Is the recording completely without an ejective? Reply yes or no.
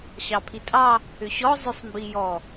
no